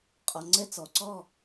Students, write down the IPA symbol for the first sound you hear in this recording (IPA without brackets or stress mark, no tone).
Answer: qʼ